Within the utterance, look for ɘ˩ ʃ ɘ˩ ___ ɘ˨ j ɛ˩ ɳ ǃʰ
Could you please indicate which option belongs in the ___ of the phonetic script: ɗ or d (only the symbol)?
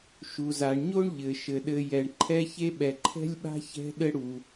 ɗ